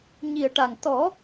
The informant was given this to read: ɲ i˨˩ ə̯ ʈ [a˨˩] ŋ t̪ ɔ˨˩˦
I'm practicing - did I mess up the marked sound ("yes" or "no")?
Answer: no